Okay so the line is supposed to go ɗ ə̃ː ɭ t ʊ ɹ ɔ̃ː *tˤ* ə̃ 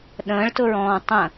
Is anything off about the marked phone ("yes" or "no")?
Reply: no